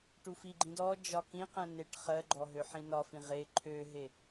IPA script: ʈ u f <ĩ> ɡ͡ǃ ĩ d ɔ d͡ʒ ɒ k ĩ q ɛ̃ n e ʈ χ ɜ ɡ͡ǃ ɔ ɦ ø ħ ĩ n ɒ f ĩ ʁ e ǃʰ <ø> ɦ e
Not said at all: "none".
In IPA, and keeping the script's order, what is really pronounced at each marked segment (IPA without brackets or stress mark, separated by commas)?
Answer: i, ø